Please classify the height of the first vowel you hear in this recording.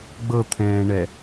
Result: mid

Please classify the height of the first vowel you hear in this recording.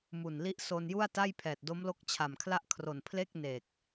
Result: high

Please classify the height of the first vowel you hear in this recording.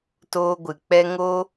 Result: mid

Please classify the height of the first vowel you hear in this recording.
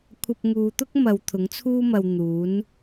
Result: low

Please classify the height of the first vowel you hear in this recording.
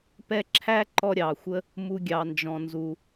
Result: mid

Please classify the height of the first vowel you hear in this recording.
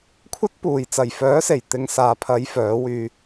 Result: low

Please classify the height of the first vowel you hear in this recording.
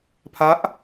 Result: low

